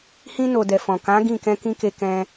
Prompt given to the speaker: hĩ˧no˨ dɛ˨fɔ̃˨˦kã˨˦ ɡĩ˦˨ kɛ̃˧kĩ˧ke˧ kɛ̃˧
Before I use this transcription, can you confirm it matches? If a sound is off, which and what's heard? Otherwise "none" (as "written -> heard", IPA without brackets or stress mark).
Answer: ɔ̃˨˦ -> ɔ̃˨